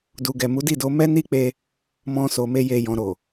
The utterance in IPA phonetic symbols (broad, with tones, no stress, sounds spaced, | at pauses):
d u˨ ɡ ɛ˨ m u˨˦ d i˦˨ d o˧ m ɛ˦ n i˦ k͡p e˧ | m ɔ̃˧ s o˨ m e˧ j e˨ j ɔ̃˨ ɾ o˨